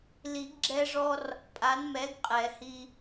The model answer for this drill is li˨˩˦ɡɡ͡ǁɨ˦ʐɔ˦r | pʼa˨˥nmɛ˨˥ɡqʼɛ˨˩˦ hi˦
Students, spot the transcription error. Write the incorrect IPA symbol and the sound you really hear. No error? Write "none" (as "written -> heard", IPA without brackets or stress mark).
ɨ˦ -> ɛ˦